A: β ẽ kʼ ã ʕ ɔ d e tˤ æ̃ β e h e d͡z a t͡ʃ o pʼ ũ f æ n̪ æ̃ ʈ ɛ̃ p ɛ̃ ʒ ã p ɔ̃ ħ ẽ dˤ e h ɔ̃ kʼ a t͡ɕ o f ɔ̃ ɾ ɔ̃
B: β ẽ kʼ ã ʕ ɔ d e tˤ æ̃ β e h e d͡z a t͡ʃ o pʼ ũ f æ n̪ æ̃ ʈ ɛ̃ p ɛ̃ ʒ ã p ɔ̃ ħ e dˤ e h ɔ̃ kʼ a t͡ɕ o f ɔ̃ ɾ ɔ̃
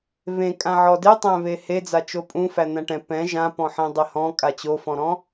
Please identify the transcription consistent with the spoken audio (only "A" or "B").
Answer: A